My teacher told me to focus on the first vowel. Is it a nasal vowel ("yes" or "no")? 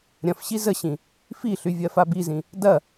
yes